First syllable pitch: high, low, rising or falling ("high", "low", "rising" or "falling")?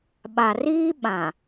low